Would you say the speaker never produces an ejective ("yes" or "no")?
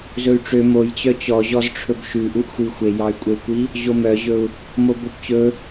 no